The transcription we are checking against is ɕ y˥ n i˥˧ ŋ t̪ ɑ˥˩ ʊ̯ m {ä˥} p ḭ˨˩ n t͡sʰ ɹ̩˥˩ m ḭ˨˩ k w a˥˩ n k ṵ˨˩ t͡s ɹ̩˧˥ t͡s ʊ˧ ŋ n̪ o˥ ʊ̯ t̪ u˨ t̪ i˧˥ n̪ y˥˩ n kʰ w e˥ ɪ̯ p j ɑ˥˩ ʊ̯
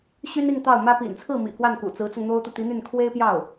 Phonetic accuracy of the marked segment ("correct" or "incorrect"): correct